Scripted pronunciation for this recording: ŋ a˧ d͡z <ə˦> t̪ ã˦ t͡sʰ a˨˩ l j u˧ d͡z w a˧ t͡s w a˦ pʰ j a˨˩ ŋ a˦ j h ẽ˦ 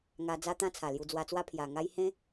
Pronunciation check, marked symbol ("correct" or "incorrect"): incorrect